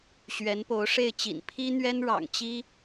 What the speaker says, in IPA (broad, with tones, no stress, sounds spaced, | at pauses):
ɕ ɥ ɛ˧˥ n p o˧˥ ʊ̯ ʂ e˥˩ ɪ̯ t͡ɕ ḭ˨˩ n pʰ i˥ n̪ ɥ ɛ˥ n ɻ ɑ̰˨˩ ŋ t͡ɕ i˥